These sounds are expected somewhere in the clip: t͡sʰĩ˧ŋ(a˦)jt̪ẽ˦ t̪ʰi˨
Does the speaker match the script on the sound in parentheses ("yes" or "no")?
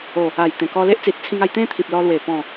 no